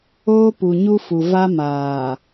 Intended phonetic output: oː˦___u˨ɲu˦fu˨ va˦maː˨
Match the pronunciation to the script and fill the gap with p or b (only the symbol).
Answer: p